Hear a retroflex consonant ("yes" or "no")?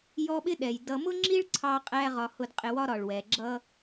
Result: yes